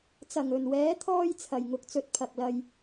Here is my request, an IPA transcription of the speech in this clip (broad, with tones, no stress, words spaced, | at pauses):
t͡sɐ˨ŋɵ˨nwɛː˨˧t̪ʰɔː˧j t͡sʰɐ˨jŋʊ˨˥k̚t͡sɵ˧t̚ pʰɐ˨k̚lɐ˧j